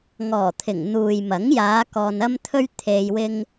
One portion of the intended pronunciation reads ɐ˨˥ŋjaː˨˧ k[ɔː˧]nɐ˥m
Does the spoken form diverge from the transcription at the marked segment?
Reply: no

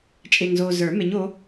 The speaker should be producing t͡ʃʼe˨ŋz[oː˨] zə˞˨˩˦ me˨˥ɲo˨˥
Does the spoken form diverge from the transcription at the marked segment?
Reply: no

